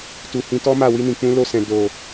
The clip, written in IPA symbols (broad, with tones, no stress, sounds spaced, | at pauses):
t u˨ h ĩ˧ t ɔ˦ m a˦˨ w i˧ n ĩ˨ k͡p ũ˧ l o˧ s ɛ̃˨ d o˨